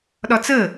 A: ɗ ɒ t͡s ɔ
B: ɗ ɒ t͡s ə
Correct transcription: B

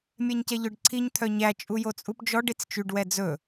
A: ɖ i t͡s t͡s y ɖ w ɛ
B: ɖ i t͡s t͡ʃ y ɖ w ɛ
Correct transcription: B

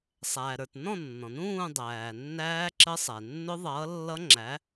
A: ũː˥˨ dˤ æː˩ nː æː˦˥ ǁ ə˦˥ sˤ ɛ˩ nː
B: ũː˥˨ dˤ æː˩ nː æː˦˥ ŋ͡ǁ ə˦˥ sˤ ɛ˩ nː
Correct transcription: A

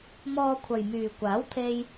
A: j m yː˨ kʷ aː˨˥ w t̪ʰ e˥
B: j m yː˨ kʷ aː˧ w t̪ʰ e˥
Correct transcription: A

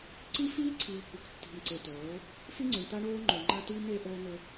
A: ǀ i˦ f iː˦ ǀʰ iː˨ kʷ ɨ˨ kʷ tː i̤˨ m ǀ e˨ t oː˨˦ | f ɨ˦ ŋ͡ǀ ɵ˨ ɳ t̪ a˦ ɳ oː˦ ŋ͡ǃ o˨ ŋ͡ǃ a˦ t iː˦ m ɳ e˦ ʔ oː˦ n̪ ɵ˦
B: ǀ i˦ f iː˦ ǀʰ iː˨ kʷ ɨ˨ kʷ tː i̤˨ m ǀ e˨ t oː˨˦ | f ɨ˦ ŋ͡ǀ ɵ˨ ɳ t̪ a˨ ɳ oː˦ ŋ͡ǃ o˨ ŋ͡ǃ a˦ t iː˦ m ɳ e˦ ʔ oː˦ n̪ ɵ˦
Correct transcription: A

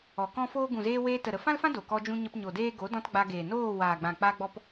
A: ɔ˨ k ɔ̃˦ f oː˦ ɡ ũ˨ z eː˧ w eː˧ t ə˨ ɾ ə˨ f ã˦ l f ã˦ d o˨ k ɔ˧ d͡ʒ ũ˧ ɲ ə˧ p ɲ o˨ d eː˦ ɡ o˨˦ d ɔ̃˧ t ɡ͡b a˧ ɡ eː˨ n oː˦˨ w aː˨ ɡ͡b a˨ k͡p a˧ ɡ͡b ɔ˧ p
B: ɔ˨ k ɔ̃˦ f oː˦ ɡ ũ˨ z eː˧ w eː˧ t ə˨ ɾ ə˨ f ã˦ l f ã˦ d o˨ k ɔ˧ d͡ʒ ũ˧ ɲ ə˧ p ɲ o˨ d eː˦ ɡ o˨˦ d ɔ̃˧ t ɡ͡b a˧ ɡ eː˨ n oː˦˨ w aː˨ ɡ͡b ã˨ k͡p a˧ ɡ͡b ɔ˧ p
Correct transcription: B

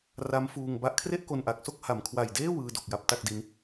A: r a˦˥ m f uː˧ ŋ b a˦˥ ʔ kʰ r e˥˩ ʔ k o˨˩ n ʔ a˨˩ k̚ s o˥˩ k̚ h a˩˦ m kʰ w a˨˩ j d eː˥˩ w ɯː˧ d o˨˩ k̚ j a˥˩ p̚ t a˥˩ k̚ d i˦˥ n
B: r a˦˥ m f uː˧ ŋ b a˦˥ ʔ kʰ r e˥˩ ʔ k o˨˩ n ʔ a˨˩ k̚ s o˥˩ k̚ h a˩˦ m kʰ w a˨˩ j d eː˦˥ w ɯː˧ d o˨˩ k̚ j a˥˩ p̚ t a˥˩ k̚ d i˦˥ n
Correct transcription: A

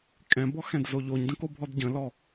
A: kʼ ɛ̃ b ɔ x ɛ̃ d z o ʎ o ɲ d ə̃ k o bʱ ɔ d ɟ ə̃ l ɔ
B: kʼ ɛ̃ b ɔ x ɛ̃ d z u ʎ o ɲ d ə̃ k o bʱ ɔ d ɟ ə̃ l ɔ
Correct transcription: A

